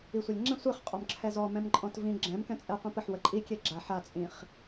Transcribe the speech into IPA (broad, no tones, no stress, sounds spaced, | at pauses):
i sʷ e lʲ ŋ͡ǁ ɛ̃ sʷ e χ qʼ ɔ m ǁʰ ɛ z ɔ m ɛ̃ m ǃʼ ɔ̃ t v ĩ ɡ͡ǁ ɛ̃ m k ɛ̃ t͡sʼ ɛ qʷ ĩ p ə ħ w ə ǃʼ i kʲ e ɡ͡ǁ a ħ a t͡sʼ ĩ χ